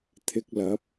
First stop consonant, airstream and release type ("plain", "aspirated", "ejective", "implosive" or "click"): aspirated